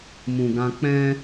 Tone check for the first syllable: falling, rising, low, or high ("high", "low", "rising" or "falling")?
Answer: low